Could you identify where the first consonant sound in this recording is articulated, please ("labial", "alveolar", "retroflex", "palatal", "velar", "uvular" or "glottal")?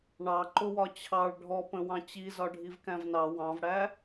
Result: retroflex